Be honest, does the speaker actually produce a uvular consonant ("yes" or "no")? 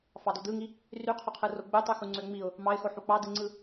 yes